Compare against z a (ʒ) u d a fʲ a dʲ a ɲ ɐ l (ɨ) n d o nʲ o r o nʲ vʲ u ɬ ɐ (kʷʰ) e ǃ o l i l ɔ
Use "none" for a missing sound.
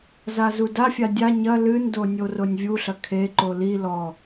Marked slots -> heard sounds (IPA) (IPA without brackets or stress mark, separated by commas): z, ɨ, kʰ